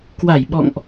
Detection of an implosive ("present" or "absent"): present